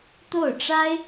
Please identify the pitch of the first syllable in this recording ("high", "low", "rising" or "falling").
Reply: falling